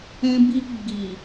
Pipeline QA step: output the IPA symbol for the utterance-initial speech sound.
ɛ̃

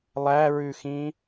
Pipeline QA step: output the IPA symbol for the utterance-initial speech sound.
lˠ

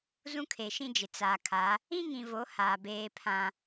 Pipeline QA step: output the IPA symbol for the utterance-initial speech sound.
z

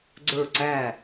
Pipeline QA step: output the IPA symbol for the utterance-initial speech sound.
ɡ͡ǀ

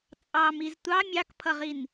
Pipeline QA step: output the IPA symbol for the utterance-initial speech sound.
t͡sʼ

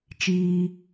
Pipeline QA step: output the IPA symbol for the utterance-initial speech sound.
t͡ʃ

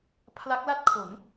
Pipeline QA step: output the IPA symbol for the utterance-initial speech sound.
pʰ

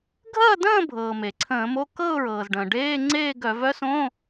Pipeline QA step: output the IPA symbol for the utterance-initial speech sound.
ɡʱ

